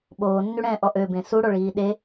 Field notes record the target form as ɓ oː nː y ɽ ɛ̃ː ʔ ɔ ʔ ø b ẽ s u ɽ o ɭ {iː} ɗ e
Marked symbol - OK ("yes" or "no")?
yes